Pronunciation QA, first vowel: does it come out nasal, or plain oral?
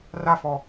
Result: oral